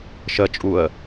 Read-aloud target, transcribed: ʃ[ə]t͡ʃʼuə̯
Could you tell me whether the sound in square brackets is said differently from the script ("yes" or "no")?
no